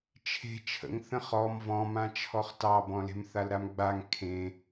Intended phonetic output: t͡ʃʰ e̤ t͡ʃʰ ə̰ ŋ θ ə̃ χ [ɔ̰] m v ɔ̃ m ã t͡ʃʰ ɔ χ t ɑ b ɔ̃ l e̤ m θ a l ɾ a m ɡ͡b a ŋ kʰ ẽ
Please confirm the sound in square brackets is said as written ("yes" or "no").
no